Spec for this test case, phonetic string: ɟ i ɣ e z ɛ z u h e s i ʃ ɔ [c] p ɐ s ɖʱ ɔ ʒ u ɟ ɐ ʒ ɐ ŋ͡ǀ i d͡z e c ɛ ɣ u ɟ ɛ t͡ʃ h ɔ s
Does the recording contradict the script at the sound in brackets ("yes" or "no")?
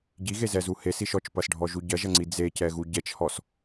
yes